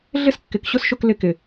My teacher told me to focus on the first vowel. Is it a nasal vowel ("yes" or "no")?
no